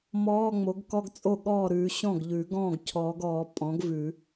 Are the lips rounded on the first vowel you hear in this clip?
yes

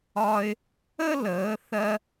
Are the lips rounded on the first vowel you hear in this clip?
yes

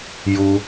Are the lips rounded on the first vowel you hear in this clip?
yes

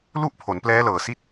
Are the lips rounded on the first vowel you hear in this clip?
yes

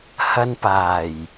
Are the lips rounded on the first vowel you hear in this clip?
no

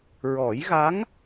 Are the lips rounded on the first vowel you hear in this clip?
yes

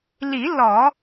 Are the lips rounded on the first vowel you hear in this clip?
no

